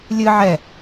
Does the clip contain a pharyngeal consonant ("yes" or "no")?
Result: yes